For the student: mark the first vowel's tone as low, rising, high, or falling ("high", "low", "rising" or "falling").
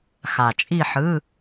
low